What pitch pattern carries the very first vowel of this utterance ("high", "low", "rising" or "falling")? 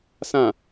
low